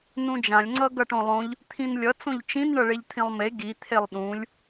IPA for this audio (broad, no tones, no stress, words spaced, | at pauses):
nũd͡ʒãlʲ ŋ͡ǀʌɡʌʈõlˠõʎ | t̪ʰĩnlʲʌ t͡sõʎt͡ʃĩn ɳʌɭeʎt̪ʰĩlˠme ɡi t̪ʰelˠɗũlʲ